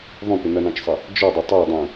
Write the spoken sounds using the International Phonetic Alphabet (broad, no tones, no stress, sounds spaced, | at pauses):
ðˤ ũ p ɪ n ʌ n ɑ̃ t͡ʃ sˤ ə | d͡ʒ ɔ dˤ ɪ tˤ æ dˤ ũ